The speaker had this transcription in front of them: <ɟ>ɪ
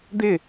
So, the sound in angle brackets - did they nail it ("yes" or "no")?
no